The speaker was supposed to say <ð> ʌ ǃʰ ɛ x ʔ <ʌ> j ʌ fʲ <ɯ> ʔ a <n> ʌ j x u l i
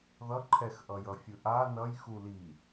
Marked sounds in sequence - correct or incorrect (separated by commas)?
correct, correct, correct, correct